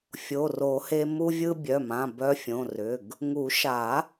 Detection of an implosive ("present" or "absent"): absent